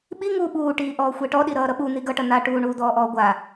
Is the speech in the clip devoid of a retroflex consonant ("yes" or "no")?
no